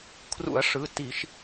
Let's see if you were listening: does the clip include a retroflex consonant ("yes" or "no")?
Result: yes